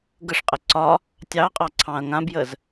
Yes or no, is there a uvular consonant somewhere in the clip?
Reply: yes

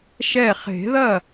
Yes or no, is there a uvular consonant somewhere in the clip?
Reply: yes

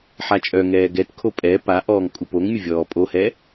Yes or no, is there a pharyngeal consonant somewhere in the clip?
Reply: yes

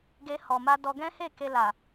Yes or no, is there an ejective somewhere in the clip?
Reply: no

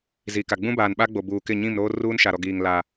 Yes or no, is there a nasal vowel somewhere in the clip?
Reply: yes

